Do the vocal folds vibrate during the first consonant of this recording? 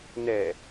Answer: yes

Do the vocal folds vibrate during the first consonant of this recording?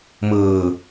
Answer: yes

